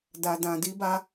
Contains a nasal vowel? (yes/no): yes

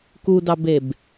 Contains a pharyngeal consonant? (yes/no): no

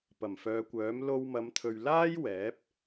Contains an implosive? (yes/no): no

